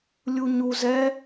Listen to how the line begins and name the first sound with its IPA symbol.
lʲ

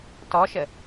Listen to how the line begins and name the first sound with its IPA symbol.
t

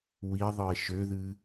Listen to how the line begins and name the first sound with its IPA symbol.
w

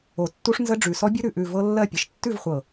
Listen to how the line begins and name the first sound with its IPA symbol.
o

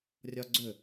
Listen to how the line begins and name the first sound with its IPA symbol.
rʲ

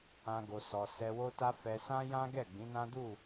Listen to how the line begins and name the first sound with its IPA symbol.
ã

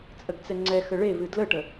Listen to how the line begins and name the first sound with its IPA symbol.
t͡sʼ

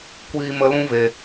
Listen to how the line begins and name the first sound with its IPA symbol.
kʷ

